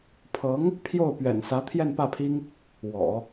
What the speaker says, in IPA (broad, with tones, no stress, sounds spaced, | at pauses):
pʰ ɤ˧˥ ŋ | pʰ j o˥˩ ʊ̯ p ɥ ɛ̰˨˩ n s ä˧˥ t̪ʰ j ɛ˥˧ n p ä˥˩ pʰ i˥ ŋ | w ɔ̰˨˩˦